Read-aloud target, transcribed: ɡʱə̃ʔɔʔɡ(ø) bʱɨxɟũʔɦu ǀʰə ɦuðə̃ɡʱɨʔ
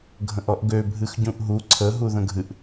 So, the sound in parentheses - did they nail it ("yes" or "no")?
yes